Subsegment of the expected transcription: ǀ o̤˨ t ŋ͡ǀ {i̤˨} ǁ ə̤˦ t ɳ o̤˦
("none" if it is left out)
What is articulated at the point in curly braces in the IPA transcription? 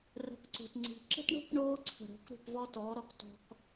i̤˨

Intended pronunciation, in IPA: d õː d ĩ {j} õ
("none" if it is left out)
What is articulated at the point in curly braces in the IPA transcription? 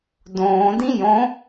j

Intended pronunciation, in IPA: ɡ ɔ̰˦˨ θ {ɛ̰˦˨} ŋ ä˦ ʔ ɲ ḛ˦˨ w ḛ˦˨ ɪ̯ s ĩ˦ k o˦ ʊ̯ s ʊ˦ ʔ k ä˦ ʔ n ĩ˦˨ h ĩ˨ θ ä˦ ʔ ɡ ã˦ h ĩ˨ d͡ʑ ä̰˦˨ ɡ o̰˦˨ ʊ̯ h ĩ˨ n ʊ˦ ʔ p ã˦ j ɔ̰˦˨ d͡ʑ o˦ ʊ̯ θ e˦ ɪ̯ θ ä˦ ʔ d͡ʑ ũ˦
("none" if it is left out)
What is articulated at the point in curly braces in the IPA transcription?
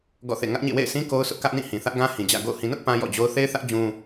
ḛ˦˨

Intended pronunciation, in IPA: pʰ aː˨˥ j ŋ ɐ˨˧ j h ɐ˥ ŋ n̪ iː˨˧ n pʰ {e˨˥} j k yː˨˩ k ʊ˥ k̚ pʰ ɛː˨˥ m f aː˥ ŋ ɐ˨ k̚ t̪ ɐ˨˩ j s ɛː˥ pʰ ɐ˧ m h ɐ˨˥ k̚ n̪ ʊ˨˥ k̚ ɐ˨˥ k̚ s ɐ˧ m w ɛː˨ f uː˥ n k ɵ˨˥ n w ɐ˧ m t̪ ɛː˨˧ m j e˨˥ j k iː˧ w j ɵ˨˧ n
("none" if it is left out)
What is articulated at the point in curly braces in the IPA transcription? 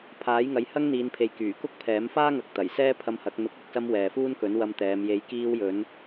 e˨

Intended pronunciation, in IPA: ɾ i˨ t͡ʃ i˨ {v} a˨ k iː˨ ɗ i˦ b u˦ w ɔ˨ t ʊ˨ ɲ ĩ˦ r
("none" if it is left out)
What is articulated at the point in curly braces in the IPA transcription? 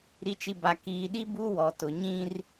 b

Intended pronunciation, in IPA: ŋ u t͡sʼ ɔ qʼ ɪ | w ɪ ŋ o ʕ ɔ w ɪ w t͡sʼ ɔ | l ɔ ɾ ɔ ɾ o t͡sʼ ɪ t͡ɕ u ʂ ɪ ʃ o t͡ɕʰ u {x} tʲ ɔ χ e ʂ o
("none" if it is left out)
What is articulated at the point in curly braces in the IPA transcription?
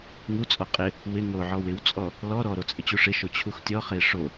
x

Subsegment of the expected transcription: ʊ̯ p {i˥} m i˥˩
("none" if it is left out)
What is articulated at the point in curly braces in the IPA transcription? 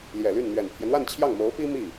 i˥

